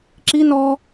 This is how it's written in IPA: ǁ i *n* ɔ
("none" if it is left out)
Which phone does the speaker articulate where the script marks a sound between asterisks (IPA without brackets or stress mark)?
n